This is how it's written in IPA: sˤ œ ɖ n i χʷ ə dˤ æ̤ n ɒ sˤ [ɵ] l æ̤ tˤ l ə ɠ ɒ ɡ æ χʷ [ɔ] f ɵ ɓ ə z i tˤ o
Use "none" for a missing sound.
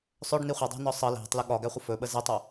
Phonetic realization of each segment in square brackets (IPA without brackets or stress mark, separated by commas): ə, ə